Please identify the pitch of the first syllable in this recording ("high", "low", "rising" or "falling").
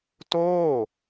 falling